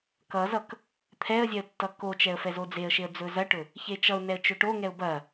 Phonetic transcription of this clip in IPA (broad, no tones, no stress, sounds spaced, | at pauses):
k ʌ z ʌ k | t̪ʰ ɛ ə̯ zʲ ɛ ə̯ tː ʌ k o t͡ʃ ɛ ə̯ f ɛ z o d͡z e ə̯ ʃ e ə̯ d͡z ɵ z ɐ ʈ ɵ | ç e t͡ʃ ʌ ʊ̯ n ɛ ə̯ t͡ʃ ɵ ʈ o ŋ ɛ ʊ̯ b ɐ